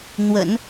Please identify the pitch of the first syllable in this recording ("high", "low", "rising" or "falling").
low